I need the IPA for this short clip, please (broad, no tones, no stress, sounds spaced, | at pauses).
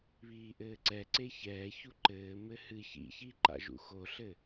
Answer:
β iː ʔ ɘː ǀ ɛ ǀ e ç ɛː ç u ǃ ɘː m ɘ h ɨ ç ḭ ç i ǃ a̰ ʒ ṵ x o ɬ ɘ